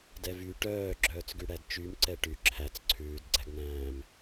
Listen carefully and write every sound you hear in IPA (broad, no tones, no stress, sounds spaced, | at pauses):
d ɛ v y ʈ œː ɡ͡ǁ œː t͡s ɡ y ɽ æ d t͡ʃ y m ǀ ɛ ʈ y ǁʰ æ t͡s ǀʰ ʉː d ɡ͡ǀ æ ɡ n̪ æ̃ː m